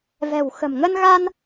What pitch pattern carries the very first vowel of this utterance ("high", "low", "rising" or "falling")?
low